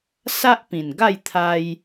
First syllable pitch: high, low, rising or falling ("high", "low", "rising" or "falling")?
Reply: high